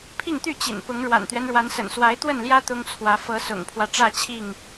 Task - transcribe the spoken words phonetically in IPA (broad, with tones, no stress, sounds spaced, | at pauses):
pʰ i˥˨ ŋ t̪ y˥˨ t͡ɕ ḭ˨˩ n p ʊ˨˦ ŋ ɻ w a̰˨˩ n t̪ ɥ ɛ˦ n ɻ w a˨˦ n s ə̰˨˩ n s w a˨˦ ɪ̯ t̪ w ə˥˨ n l j ä˦ t̪ ʊ˦ ŋ t͡sʰ w ä˨˦ f ɤ˨˦ s ʊ̰˨˩ ŋ pʰ w ä˦ ʈ͡ʂ ä˥˨ t͡ɕʰ i˥˨ ŋ